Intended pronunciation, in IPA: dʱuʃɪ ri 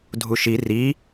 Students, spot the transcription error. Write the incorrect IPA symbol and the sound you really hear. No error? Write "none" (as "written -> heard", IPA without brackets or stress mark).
ɪ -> i